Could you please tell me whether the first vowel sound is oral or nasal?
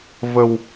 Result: oral